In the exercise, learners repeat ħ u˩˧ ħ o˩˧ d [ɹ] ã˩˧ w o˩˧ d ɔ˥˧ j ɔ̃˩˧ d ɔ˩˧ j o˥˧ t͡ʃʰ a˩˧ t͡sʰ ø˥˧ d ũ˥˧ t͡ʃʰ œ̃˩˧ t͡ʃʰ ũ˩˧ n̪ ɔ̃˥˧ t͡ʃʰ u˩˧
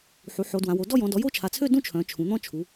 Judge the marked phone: incorrect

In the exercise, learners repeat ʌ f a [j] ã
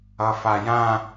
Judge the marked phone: correct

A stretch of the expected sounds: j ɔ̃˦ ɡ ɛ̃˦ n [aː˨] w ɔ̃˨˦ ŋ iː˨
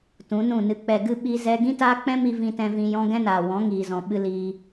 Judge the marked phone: correct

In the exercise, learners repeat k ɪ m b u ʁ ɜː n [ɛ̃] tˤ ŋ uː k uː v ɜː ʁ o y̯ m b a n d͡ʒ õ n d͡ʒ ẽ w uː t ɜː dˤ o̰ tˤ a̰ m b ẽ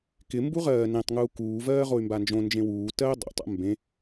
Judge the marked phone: incorrect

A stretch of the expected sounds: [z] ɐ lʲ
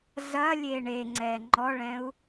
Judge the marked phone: correct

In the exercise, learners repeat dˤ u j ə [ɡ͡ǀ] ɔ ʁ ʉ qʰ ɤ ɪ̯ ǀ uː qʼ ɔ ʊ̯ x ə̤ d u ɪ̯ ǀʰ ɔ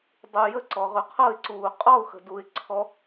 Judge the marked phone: incorrect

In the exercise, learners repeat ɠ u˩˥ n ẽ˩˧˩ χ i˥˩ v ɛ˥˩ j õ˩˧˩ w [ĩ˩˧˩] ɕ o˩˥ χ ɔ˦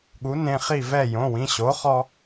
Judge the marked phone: correct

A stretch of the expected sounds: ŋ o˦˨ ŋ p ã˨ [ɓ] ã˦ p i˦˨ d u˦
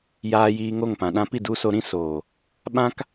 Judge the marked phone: incorrect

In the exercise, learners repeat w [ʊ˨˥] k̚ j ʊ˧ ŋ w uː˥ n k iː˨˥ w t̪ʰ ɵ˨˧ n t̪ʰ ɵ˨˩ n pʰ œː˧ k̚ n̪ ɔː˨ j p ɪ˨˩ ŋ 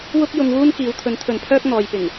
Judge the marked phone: incorrect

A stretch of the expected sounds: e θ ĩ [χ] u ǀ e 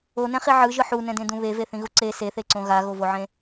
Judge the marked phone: incorrect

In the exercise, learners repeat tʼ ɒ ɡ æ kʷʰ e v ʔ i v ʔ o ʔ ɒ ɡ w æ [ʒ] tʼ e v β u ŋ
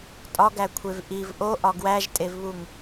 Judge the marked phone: correct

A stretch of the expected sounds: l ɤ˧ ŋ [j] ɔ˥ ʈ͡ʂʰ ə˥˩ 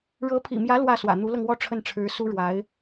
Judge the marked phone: incorrect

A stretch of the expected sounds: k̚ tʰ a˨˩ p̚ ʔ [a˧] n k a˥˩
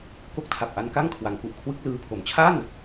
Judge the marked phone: correct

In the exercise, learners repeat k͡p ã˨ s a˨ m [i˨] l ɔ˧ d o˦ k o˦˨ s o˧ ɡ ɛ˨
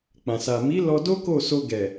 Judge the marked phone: incorrect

